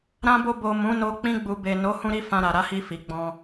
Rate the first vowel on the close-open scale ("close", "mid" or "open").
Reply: open